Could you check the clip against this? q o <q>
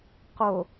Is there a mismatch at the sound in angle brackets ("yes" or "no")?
yes